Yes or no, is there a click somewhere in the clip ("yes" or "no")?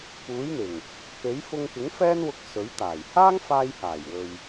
no